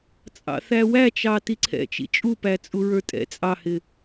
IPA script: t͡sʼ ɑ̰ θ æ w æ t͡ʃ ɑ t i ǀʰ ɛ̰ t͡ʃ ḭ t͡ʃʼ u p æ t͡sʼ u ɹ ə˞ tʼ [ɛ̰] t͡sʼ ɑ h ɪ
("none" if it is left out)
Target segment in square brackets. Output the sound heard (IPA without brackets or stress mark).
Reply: ɛ̰